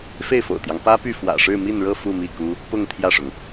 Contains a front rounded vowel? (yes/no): yes